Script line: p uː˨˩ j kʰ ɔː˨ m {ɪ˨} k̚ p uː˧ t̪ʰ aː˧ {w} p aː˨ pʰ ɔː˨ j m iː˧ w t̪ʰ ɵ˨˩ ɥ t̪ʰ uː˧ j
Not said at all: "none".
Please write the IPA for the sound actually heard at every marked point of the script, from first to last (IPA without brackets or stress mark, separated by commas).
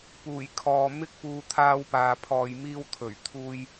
ɪ˥, w